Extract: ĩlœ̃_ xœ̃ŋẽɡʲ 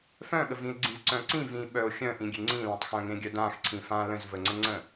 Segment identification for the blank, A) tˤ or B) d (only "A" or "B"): A